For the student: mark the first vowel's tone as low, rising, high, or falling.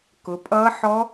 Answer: rising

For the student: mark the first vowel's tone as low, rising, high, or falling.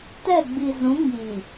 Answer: falling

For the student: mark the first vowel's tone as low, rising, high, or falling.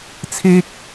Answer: high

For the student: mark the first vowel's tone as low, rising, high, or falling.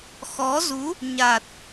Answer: rising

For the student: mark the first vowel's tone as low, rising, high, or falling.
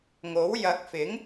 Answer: rising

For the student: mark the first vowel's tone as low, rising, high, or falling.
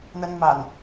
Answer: high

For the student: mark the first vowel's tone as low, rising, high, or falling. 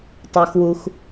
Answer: low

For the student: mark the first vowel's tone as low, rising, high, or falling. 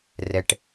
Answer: low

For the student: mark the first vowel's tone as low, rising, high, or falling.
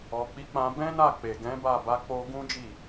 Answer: low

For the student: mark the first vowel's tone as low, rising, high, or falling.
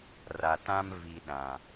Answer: low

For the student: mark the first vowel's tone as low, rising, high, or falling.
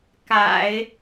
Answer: low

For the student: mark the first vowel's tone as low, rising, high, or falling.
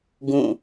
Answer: falling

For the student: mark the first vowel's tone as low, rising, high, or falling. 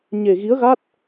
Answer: low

